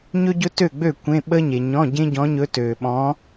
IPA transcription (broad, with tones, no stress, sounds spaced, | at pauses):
ɲ ɵ˥ ɟ ɵ˥ t ø˥˨ ɡ͡b ø˥˨ kʷ ẽ˧˥˧ ɓ ə˥ ɲ e˨ ɲ ɔ̃˧˥˧ ɟ ẽ˥ ɟ ɔ̃˧˥ ɲ ɵ˧˥ t ø˨ ɓ ɔ̃˧˥